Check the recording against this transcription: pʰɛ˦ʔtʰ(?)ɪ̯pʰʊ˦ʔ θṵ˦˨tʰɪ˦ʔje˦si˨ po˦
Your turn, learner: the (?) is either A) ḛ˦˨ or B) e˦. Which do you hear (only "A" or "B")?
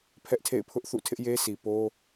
A